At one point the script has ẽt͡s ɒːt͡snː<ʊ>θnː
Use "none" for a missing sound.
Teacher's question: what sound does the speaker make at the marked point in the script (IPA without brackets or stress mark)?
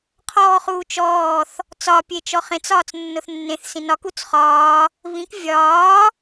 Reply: ʊ